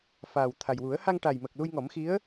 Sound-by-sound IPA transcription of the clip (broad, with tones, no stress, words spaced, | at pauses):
fa˨˩w t̪ʰa˨˩j wu˨˩˦ə̯ ha˧ŋʈa˨˩jmə˨˩k̚ lu˧jŋɔ˨˩˦mxi˧˥ə̯